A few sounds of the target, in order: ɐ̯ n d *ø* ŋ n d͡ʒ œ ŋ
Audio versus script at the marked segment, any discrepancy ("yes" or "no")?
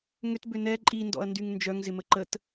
yes